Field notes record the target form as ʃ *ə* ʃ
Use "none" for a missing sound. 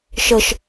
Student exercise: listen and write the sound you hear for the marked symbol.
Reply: ə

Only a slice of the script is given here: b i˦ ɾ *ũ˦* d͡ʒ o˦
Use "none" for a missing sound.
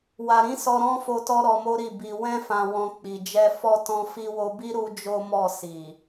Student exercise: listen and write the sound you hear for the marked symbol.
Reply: u˦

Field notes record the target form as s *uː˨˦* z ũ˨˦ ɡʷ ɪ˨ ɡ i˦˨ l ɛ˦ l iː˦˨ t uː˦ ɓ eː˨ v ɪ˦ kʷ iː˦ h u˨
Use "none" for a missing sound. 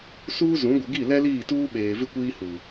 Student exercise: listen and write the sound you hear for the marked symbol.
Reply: uː˦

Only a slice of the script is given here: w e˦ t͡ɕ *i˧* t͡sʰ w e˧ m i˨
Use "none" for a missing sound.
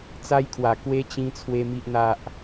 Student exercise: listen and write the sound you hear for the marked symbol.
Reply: ĩ˧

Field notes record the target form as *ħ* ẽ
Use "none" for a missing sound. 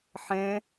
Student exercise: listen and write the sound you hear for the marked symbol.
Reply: ħ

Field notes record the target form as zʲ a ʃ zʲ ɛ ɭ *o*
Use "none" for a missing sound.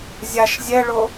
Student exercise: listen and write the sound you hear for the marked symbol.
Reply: o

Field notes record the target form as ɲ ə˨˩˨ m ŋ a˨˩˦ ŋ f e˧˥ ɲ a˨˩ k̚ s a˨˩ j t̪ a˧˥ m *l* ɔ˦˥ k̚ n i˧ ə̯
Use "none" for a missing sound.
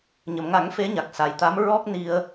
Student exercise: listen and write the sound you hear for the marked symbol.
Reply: ɹ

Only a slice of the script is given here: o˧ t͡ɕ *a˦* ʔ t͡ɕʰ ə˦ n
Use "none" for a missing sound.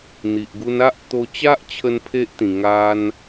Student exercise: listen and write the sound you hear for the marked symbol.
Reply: a˦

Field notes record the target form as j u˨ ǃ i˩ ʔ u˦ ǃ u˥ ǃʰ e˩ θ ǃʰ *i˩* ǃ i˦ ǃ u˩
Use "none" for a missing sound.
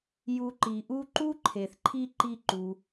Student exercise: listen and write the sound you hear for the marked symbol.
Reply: i˦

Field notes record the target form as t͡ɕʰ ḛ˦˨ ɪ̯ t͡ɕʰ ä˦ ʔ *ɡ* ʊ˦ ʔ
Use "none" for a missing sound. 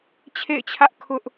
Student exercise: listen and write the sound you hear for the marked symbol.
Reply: kʰ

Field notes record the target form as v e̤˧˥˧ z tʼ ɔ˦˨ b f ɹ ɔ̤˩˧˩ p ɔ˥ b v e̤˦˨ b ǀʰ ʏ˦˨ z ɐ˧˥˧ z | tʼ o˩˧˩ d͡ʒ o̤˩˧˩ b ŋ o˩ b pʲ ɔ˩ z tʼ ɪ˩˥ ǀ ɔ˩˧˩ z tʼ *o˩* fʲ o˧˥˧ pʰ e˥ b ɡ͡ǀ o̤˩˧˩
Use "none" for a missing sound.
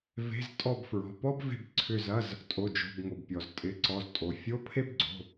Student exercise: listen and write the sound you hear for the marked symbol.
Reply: o˩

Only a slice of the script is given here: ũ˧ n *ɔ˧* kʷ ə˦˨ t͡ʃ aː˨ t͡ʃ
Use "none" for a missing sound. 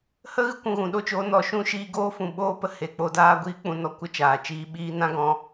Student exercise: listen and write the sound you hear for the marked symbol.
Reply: ɔ˧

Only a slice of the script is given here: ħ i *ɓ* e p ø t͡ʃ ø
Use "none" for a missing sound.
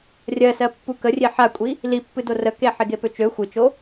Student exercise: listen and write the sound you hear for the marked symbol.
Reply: ɡ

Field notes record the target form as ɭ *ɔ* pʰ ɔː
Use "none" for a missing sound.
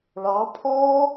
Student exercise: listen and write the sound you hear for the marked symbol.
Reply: ɑ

